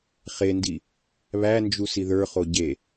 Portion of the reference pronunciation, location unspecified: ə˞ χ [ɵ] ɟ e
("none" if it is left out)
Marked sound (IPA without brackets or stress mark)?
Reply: o